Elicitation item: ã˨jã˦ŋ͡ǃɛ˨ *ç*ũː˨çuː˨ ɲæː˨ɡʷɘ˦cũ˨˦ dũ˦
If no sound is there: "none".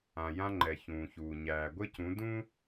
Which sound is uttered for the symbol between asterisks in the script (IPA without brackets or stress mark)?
ç